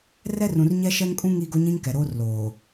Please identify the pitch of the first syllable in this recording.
high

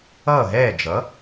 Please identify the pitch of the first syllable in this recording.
falling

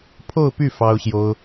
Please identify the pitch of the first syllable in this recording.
falling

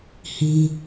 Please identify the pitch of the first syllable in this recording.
high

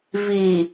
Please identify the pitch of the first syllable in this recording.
low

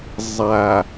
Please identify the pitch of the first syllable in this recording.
low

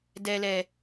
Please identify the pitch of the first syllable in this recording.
low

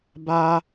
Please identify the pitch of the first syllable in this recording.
high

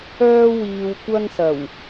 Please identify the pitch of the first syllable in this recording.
high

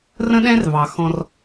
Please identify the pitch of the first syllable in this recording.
high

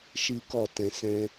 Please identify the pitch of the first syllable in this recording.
high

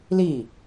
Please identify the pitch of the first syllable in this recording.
falling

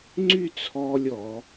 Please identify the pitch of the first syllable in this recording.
falling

